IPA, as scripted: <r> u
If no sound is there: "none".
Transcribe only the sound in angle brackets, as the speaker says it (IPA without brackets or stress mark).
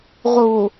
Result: ʁ